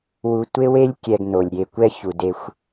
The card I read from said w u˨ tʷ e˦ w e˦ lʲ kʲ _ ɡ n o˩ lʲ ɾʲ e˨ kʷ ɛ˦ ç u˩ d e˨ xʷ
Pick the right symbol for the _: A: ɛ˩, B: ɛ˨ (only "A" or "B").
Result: B